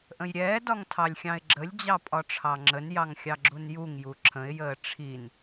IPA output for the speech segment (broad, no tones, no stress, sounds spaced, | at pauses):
ʔ ə̃ j ɾʲ ɛː d ɒ ŋ tʰ ɑ lʲ xʲ ɑ̃ ɪ̯ ɡ͡ǁ ə lʲ d͡ʑ ɑ pʼ ɒ ʈ͡ʂʰ ɑ ŋ͡ǁ ə n j ɑ ŋ xʲ ɑ ɡ͡ǁ u n j u ŋ j u ǁʰ ə̃ ɪ̯ j əː ʈ͡ʂʰ i n